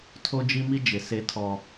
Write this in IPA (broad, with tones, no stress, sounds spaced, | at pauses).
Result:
tʰ o˦ d͡ʒ i˦ m i˦ d͡ʒ ɪ˨ s e˦ tʰ ɔ˦